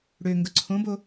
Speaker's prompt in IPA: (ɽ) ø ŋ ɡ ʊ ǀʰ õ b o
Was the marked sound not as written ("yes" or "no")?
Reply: no